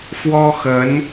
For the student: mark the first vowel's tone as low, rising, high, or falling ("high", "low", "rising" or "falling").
high